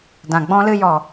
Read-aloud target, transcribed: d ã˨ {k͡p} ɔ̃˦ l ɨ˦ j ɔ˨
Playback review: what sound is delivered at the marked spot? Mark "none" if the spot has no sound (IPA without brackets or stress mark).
ɡ͡b